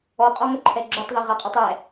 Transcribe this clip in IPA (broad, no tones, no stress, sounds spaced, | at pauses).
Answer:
ɔ qʼ ɔ ŋ ʌ ǃʰ ɛ ɡ͡ǁ u tˤ ð ʌ ʁ a qʼ u tˤ ɛ